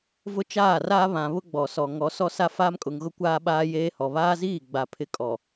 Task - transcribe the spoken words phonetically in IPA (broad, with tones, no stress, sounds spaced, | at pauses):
v ʊ˦ t͡ʃ aː˦˨ r aː˦ β ã˨ β ʊ˦ ɡ͡b ɔ˨ s ɔ˨ ŋ ɔ˨˦ s ɔ˦ s a˦ f aː˦ m kʼ ʊ˨ ŋ ɣ ʊ˦ kʷ aː˦ ɓ aː˦ j eː˦ h ɔ˨ β aː˦ z iː˦˨ ɡ͡b a˨ pʰ ɪ˦ kʼ ɔ˨